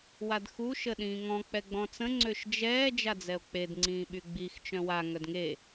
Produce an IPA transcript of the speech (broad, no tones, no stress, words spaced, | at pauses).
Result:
wadxu ʃəɗĩːŋɔ̃ k͡pɛɡ͡bɔ̃t͡sə̃ ŋ͡ǀøʃd͡ʒɛː d͡ʒad͡zɛo̯k͡ped ŋ͡ǀĩːɓyɡ͡bix t͡ʃœ̃wa ŋœdŋe